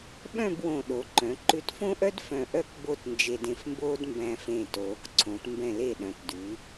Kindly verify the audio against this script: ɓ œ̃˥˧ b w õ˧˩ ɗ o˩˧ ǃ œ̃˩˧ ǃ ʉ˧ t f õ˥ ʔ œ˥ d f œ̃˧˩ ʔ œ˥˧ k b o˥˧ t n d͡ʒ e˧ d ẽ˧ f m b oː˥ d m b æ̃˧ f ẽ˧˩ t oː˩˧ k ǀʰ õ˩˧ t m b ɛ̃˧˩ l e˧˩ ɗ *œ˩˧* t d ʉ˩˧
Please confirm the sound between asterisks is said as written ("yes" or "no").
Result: no